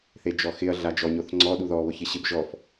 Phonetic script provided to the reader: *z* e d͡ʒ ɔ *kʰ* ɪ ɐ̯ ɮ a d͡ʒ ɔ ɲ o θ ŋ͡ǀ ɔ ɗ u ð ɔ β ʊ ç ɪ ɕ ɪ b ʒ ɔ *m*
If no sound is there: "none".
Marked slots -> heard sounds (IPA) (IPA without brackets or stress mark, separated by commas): θ, x, f